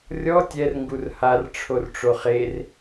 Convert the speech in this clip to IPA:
rʲ ɔ tʲ ɛ r ŋ ɡ u r h a r ʈ͡ʂʰ o r ʈ͡ʂ o χ e r

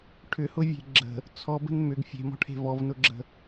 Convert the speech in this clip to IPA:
ʈʰ ʏ h ʊ vʲ e̤ ɡ͡ǁ ə̤ | t͡sʰ ɔ b ə̤ n m ʏ ɡ fʲ e̤ m ɔ̤ ʈʰ e̤ v ɔ v n ʊ ɡ͡ǁ ə̤

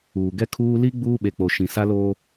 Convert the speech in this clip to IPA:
uː˨ ɡ ɛ˦ kʰ uː˦ l i˦ ɡ͡b uː˦ ɓ e˨ k͡p o˨ ʃ ĩ˨ s a˦ l oː˦

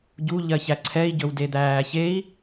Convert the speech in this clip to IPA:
ɟ u ʎ ɜ ç æ ǀʰ ɛ i̯ ɟ ɵ w d e d̪ æː ç e i̯

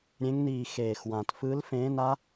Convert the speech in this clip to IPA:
ɾʲ ẽ˨˦ ŋ n iː˨˩ x eː˨˩ x w ã˨˩ t f ɯ˨˦ l f ẽː˨˦ n a˦˥

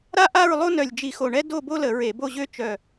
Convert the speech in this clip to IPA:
ɾ a˥ ʔ a˥˨ ɹ lˠ o˥ n œ˧˩ lʲ d͡ʒ i˧˩˧ x o˧˩ ɳ ɛ˥ d o˥˨ b o˥ l ə˧˩˧ ɹ e˧˩˧ b o˥˨ ʑ ø˥ t͡ʃ œ˧˩

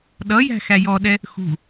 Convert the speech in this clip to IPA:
ɗ ʌ j æ̤ x æ j ɔ ɗ ɛ | x ṳ

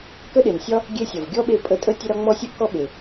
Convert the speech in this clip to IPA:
k ə˥ ɗ e˨ n sʲ ɒ˥ | ɡʲ e˦ sʲ ɒ˨ v ɡʲ ɔ˥ ɓ e˦ pʼ ə˦ tʼ ə˥ tʲ ə˦ ɾ ɒ˦ ŋ͡m ɔ˦ sʲ ə˥ ʔ k ɔ˥ ɓ e˨

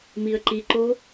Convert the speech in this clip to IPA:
m i ə̯ ǃ i ǃ o

